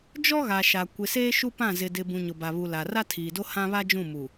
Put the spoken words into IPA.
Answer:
d͡ʒ ɔ˦ ɣ a˨ ʃ a˨ kʷ ɪ˨ s eː˦ ʃ u˦ p ã˦˨ z ɪ˨ d ɪ˨ b ũ˨ ɲ ʊ˨ b a˨ β u˨ l a˨ r a˦ tʰ iː˨ d o˦ h ã˦ β a˦ d͡ʒ ũ˦˨ m u˨

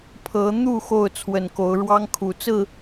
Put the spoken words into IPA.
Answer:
pʰ ɤ˨˦ n̪ u˥˨ x o˥˨ ʊ̯ t͡sʰ w ə˨˩ n k o˨˦ ʊ̯ ɻ w ɑ˦ ŋ kʰ u˨˩ t͡s ɹ̩˥˨

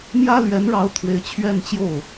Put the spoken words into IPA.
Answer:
m j ä˥ l ɥ ɛ˧˥ n ɻ ɑ˧˥ ʊ̯ t̪ʰ w e˧˥ ɪ̯ t͡ɕʰ ɥ ɛ˥˧ n t͡ɕ j o˥˩ ʊ̯

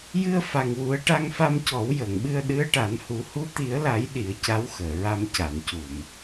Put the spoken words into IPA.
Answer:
j ɨ˧ ə̯ f a˨˩ ŋ w u˨˩˦ ə̯ ʈ a˧ ŋ f a˧ m c ɔ˨˩˦ w j əː˨˩˨ ŋ ɓ ɨ˧ ə̯ ɗ ɨ˧˥ ə̯ ʈ a˨˩˦ n h u˨˩˦ h u˧˥ t̪ i˨˩˦ ə̯ l a˨˩˦ j ɗ i˨˩˦ ə̯ c a˧˥ w x əː˨˩˨ ɹ a˧ m c a˨˩˨ n c u˨˩˨ m

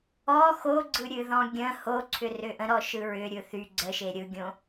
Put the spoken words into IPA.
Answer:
ɔ x o ɡ͡ǀ ɯ ɾʲ ɨ ð ɔ̃ ɡʲ ə̃ h o ǀʰ ʏ r ʏ ʔ ə̃ ɾ ɔ ʃ ɯ ɹ ʏ ɾʲ ɯ θ y ɡ͡ǀ ə ʃ e ɾʲ ɯ ɡʲ õ

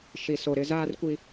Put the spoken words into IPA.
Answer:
ʃ i˨ s o˨ ɾ ɪ˦ z aː˦ r kʷ i˦

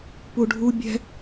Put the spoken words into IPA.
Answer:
p u ɖʱ u bʲ ɛ̤

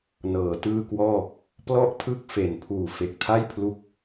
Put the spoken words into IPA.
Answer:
n ɤː˩˦ t ɯː˥˩ k w ɔː˥˩ | p l ɔ˥˩ ʔ tʰ ɯ˥˩ k̚ f e˩˦ n pʰ uː˨˩ f e˨˩ k̚ tʰ a˥˩ j pʰ l u˦˥ k̚

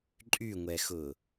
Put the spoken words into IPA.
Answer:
ǃʼ y ŋʷ ɛ x ʊ

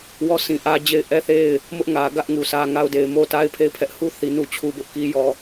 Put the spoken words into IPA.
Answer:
w ɔ˦˨ s ĩ˨ ʔ ä˦ d͡ʑ e˦˨ ɪ̯ ʔ ɛ˦˨ θ e˦˨ ɪ̯ | m ʊ˦ ʔ ŋ ä˨ ɡ ä˦ ʔ ŋ u˨ s ä˦ ŋ a˦ ʊ̯ d e˨ ɪ̯ m o˦ t a˦ ɪ̯ pʰ e˦˨ ɪ̯ pʰ ɛ˦ ʔ h u˦˨ θ i˨ n u˦ t͡ɕʰ u˦ b ʊ˦ ʔ k i˦ j ɔ˦˨

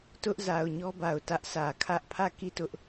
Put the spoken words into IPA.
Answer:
t ʊ˦ ʔ z a˨ ʊ̯ ɲ ɔ˦ b a˨ ʊ̯ t ä˦ ʔ sʰ ä˨ kʰ ä˦ ʔ pʰ ä˦˨ k i˦˨ t ʊ˦ ʔ

